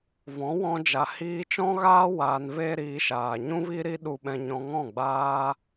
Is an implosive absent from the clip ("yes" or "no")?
no